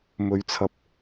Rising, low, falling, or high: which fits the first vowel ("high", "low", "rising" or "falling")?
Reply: low